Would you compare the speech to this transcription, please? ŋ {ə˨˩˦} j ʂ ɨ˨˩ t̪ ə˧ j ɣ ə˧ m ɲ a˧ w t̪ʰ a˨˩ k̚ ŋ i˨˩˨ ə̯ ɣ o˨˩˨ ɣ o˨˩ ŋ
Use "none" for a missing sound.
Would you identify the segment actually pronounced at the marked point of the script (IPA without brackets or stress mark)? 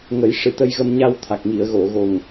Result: ə˨˩˦